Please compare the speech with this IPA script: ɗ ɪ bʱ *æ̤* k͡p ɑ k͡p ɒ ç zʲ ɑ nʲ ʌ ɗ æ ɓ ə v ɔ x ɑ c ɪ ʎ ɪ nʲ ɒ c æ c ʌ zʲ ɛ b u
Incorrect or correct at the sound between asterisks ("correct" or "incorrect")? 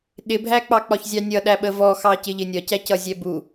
incorrect